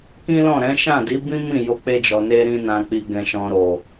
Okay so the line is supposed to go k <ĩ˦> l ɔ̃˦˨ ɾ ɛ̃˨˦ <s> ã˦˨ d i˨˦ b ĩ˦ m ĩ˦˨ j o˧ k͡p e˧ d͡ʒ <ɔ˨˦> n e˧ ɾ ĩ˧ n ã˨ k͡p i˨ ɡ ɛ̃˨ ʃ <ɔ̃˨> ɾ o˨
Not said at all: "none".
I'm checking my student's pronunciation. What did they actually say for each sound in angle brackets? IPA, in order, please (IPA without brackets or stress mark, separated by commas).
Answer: ĩ˦, ʃ, ɔ˨, ɔ̃˨